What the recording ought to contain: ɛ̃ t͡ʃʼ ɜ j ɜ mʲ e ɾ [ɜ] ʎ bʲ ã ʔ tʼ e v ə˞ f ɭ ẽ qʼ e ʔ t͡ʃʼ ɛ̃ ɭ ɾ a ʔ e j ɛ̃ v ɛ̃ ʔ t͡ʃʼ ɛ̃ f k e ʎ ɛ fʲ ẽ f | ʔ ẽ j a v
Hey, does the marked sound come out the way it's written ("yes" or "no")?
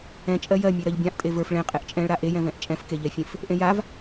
yes